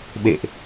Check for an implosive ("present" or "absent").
present